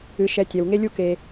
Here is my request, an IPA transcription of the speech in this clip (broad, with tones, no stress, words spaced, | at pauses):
ɨ˧ʃɛ˧ tʲɛ˨wŋe˦ lʲu˦ke˧